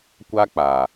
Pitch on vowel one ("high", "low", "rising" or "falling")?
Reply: high